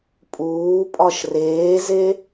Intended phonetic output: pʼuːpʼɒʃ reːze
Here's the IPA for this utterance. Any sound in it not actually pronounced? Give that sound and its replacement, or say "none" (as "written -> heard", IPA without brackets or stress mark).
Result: none